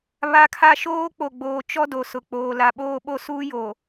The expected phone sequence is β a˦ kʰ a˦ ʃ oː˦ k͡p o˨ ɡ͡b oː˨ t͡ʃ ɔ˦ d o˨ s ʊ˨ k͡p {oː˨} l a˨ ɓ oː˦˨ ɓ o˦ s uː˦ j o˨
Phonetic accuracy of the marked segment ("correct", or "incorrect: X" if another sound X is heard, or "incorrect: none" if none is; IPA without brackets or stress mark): correct